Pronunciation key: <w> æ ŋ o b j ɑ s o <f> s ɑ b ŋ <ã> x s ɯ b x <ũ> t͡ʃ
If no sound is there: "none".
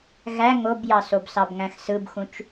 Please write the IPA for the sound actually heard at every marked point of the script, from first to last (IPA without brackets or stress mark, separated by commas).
ɣ, b, æ̃, ũ